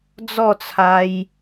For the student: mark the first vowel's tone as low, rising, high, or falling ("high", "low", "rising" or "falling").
falling